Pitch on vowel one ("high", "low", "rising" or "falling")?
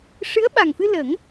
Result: rising